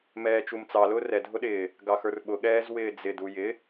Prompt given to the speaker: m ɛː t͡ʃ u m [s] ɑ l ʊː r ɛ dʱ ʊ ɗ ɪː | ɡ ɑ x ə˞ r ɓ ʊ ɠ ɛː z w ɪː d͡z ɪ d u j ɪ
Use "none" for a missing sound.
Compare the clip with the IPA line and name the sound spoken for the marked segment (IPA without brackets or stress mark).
t͡s